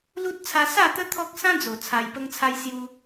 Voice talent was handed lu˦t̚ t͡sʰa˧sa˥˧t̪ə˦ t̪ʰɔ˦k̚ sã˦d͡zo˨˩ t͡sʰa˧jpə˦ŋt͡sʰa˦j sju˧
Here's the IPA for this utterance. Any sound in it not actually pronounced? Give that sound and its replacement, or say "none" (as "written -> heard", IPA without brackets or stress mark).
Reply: none